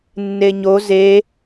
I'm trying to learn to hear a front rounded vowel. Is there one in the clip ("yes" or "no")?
no